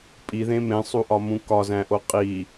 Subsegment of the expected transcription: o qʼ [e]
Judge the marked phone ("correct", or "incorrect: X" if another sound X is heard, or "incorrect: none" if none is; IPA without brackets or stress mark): incorrect: i